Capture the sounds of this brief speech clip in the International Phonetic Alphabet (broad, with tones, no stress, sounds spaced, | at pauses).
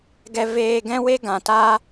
ɡ ɛ˦ v eː˦ ɡ ɛ̃˦ w e˦ ɡ ã˧ t aː˦